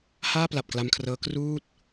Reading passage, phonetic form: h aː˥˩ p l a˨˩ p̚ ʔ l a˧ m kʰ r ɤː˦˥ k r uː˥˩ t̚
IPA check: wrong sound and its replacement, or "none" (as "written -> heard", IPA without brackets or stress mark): ʔ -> k